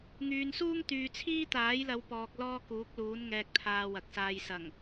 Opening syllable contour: low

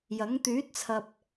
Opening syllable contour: rising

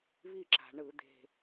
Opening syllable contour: falling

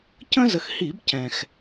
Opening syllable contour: high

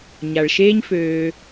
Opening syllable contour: low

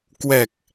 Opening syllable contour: low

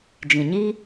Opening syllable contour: low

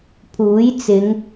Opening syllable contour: rising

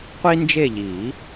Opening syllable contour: high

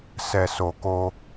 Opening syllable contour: low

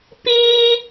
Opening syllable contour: high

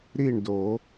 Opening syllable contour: falling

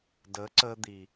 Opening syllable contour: rising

